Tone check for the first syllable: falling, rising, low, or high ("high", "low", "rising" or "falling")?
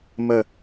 falling